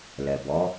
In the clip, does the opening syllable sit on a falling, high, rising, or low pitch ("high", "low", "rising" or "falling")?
low